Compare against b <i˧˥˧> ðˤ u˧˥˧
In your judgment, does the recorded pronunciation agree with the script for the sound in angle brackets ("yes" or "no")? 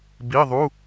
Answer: yes